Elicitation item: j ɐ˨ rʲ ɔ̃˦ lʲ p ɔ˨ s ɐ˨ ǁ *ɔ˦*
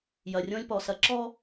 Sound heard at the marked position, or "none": ɔ˦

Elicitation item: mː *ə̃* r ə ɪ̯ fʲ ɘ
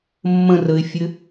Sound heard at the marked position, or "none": ə̃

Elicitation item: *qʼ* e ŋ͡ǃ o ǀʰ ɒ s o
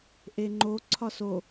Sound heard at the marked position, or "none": ʔ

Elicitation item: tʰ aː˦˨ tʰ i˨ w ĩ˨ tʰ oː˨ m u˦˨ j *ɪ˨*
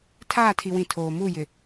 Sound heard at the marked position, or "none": ɪ˨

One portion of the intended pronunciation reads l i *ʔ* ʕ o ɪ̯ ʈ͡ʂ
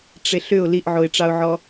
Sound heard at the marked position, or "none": ʔ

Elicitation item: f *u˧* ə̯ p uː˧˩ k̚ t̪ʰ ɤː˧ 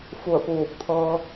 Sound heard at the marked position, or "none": u˧˩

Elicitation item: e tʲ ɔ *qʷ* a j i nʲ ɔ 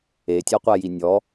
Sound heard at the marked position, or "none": qʷ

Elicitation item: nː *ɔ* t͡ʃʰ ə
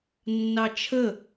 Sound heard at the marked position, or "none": ɑ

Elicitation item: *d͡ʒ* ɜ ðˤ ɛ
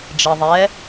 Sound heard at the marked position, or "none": d͡ʒ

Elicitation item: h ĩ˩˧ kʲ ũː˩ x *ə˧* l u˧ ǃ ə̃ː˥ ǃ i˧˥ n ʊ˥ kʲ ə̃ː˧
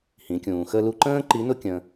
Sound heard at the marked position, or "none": ə˧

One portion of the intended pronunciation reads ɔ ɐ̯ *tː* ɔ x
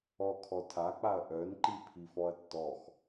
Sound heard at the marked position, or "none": tː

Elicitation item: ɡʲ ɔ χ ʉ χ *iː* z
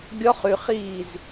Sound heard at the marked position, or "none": iː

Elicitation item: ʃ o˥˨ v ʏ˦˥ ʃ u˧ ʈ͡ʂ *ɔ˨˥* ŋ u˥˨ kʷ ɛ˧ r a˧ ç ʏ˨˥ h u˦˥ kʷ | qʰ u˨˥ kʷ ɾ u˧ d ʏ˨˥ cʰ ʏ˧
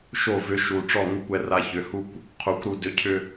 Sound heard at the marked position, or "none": ɔ˥˨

